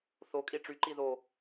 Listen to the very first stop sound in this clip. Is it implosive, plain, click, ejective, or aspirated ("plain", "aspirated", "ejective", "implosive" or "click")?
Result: ejective